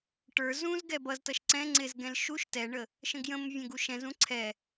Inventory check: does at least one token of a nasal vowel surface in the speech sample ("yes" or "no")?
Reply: yes